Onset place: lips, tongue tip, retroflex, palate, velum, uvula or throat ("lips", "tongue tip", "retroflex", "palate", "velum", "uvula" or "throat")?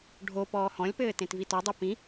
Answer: retroflex